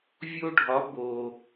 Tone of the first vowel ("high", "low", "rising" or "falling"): high